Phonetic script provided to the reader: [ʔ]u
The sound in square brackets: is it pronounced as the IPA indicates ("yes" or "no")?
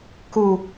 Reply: no